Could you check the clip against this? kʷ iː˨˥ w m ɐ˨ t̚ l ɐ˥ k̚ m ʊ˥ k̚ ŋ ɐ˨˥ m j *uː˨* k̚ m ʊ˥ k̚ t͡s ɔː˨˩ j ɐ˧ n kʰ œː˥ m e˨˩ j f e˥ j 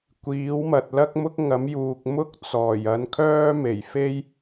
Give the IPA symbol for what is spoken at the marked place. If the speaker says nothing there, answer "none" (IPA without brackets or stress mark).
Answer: uː˨